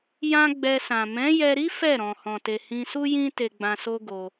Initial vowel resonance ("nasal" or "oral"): nasal